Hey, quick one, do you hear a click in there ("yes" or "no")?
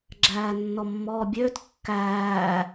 yes